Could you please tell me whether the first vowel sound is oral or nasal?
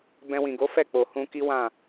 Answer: nasal